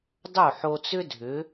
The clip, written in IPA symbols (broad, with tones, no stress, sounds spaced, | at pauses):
dˤ o˥˩ ħ o˧ t͡s ʏ˥ dʱ ʏ˩˥